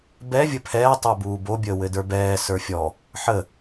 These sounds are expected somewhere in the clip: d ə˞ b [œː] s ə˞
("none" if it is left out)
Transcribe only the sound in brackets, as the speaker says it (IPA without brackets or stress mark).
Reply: ɛː